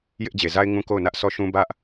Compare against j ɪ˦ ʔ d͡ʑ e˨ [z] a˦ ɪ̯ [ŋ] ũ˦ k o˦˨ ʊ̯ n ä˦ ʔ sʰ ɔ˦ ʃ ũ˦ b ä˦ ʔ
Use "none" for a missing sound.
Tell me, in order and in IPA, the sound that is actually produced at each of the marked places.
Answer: z, ŋ

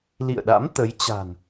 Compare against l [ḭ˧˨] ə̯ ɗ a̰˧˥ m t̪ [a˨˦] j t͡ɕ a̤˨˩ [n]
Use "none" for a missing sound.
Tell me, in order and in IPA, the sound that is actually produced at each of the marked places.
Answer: ḭ˧˨, ə˨˦, n

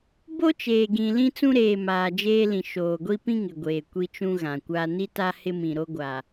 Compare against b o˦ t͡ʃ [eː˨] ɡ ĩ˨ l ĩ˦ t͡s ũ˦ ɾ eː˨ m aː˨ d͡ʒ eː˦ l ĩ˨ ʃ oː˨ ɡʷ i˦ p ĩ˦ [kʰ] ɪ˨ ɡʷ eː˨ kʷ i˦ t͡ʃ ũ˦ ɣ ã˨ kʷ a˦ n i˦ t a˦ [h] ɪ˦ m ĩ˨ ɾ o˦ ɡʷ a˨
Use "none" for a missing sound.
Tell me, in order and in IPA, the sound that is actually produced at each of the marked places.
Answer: eː˨, ŋ, h

